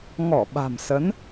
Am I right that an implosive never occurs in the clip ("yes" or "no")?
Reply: no